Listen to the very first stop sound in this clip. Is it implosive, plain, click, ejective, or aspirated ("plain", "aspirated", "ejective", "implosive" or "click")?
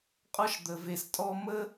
ejective